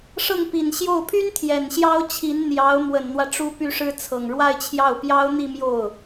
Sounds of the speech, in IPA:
ʂ ɤ˥˩ ŋ p i˨˩ n ɕ j o˥˩ ʊ̯ pʰ y˥ n t̪ʰ j ɛ˨˩ n ɕ j ɑ˥ ʊ̯ t͡ɕʰ i˧˥ n n̪ j ɑ˧˥ ʊ̯ m w ə˨˩ n n̪ w ä˦ ʈ͡ʂ u˥ p y˥ ʂ ɻ̩˥ t͡sʰ ɤ˨˩ ŋ ɻ w a˥˧ ɪ̯ t͡ɕʰ j ɑ˥˩ ʊ̯ p j ɑ˥ ʊ̯ n̪ i˥˧ m j o˥˩ ʊ̯

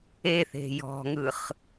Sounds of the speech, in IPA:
e θ e̤ j ɔ̤ ŋ ɯ χ

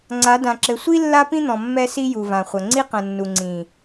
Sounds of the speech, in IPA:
ŋ͡ǀ a˨˦ d ã˨ ǁ ɘ˨ sʷ i˦ lː a˦ p ĩ˦ n̪ ɔ̃˨ mː ɛ˦ s i˦ j u˨ v ã˨ χʷ ɐ˨ ŋ͡ǀ i˦ q ɐ̃˨ nː u˨ ŋ͡ǀ ĩ˨

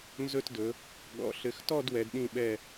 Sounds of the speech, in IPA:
n z ɵ˥˧ t d ɵ˨˦ | ɠ ɔ̰˨˦ ɬ ɘ˨˦ x t ɔ˥˧ d w ɛ˨˦ d ɗ ĩ˥˧ ɓ ɛ˥˧

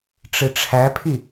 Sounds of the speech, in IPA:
ʈ͡ʂ ɨ ʈ͡ʂʰ æ pʰ i

